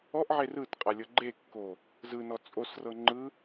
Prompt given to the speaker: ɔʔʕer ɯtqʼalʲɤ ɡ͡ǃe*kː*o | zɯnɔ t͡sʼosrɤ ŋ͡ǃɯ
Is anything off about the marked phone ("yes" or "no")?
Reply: no